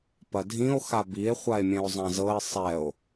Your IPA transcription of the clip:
p ɐ dʱ ĩ o̯ x a b i e̯ χʷ a e̯ mʲ ɛ̃ o̯ zˤ ã z ɤ e̯ sˤ ɛ o̯

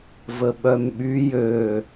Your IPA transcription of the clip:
v ə ɓ œ m ɓ y j ø

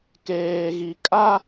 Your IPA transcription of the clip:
k eː˨ ɣ i˨ kʼ a˦

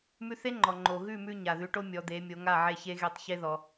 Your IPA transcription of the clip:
m ʉ˧ θ e˦˥ ŋ͡ǃ ɔ˩ ŋ͡ǃ o˩ ɣ ʉ˥˩ m ʉ˧ ɲ a˩ ð ʉ˩˥ ʈ o˦˥ mʲ ɔ˩˧ d̪ e˩˧ mʲ o˩˧ ŋ a˥˩ ʕ e˥˩ ç e˦˥ ɣ e˥˩ tˤ ç e˦˥ ð ɔ˩

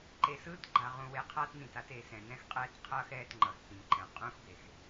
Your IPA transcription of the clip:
ǃ e˨ s ɯː˦ t ɡ͡ǃ a˨ ʁ ũ˨ w e˨ qʰ aː˦ t n ĩ˨ t a˦ t e˨ s ɛ̃˨ n ɛ̃˦ x qʼ ɛː˦ t qʰ ʌː˦ x ɛː˦ t ŋ͡ǃ ʌ˨ x p ĩ˨ ǃ ɛ̃˨ qʼ ũ˦ x b e˨ x

